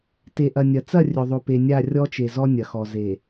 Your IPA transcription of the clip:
t e˨ ʔ ɐ˨ nʲ ɐ˨ t͡s ɐ˦˨ rʲ ɵ˨ ðˤ o˨ p e˨ nʲ a˦˨ rʲ ɔ˦ t͡ʃ e˨ z ɔ˦ nʲ ɐ˨ x ɔ˨ z e˨

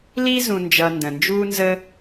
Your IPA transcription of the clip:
l i˥ z ũ˨ n d͡ʒ ʌ˨ n d ə̃˩ n d͡ʒ uː˦ n z ə˦

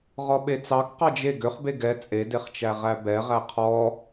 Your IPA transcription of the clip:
ʁ ɔ ɓ e t͡s ɑ k q ɑ d͡ʒ e ɡ ø χ b e ɡ ɛ t͡sʼ e d e χ t͡ʃ æ ʁ æ b ɛ ʁ æ qʰ ɔ

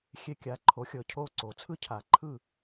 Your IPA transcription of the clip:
xʲ e˧ kʲ a˩˥ ǃʰ o˩˥ xʲ ɤ˩ cʰ o˥˩ ǀ o˩ t͡sʰ ɯ˥ cʰ a˩ ǃʰ ɯ˥˩

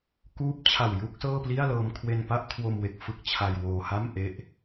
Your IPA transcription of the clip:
k uː˦˥ p̚ t͡ɕʰ a˨˩ w j u˥˩ k̚ s ɤː˥˩ p l i˥˩ a̯ l ɤː˧ m kʰ w e˧ n p a˥˩ ʔ kʰ w o˧ m w e˨˩ k̚ f ɯ˥˩ k̚ t͡ɕʰ a˧ j w oː˧ h a˥˩ m ʔ e˥˩ ʔ

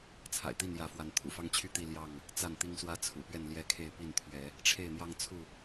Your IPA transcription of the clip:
t͡sʰ a̰˨˩ ɪ̯ t̪ i˥˨ n j ä˨˦ f w a˨˦ n t̪ʰ ṵ˨˩ f ɑ˦ ŋ t͡ɕʰ y˥˨ t̪ i˥˨ l j ɑ˥˨ ŋ | t͡s a˥˨ n t̪ i˦ ŋ s w ä˦ t͡sʰ ṵ˨˩ p ɥ ɛ˥˨ n l j ɛ˥˨ kʰ e˥˨ ɪ̯ p i˥˨ n t̪ʰ ɥ ɛ˨˦ | ʈ͡ʂʰ e˥˨ ɪ̯ n̪ j ɑ˦ ŋ t͡sʰ u˥˨

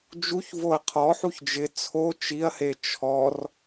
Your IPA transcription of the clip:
d͡ʒ u ç v o ɐ̯ qʰ ɔ ħ u ç d͡ʒ ɪ t͡sʰ o t͡ʃ i ɐ̯ h e t͡ʃʰ ɔ r

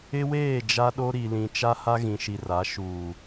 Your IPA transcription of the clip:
ɪ˦ w eː˦˨ d͡ʒ a˦ ɗ o˦ ɾ i˨ l ĩ˨ t͡ʃ a˦ h a˦ ɣ ĩ˨ ʃ i˨ r a˨˦ ʃ uː˨

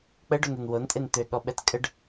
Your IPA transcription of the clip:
k͡p ə ɖ o n e n w o n tʼ e n t̪ ø ɠ ɔ ɓ ɛ t kʼ ə ɖ

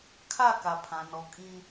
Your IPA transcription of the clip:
kʰ a˦˨ k a˨ pʰ ã˨ n ɔ˨ kʼ ĩ˦

